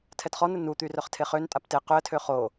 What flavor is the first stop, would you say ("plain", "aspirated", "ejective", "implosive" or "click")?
aspirated